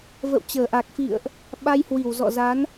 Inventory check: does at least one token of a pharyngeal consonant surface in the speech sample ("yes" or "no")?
no